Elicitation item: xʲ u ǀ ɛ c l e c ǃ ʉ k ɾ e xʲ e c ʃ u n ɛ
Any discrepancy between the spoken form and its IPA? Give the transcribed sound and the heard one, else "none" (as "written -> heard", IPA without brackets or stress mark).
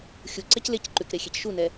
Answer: none